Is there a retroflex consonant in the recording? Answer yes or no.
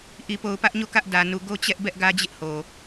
no